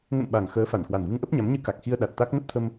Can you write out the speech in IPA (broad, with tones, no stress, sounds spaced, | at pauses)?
ŋ ə̰˧˨ n ɓ a˨˩ ŋ x əː˨˦ f a˧˩ n k w a˨˩ n v ɨ˧ ŋ ʔ ə˦˥ p̚ ɲ a˨˦ m ɲ ɨ˧ k a˨˩ k̚ x i˧ ə̯ ɗ a˨˩ t̚ t̪ a˦˥ k̚ n ə˦˥ p̚ t̪ʰ ə˧ m